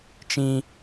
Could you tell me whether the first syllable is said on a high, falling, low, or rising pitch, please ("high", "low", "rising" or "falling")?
high